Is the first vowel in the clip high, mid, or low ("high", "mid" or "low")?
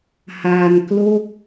low